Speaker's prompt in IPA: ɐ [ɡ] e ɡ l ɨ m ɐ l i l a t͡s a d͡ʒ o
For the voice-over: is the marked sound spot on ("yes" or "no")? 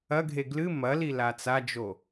no